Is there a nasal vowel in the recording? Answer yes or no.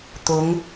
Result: no